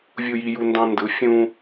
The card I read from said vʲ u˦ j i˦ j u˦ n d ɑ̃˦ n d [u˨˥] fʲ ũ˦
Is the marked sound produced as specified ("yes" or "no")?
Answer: no